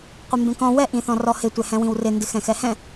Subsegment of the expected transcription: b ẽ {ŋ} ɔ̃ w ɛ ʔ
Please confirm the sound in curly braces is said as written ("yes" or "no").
no